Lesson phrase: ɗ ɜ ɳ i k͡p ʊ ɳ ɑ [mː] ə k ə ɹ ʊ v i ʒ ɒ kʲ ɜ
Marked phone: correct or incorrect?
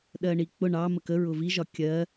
incorrect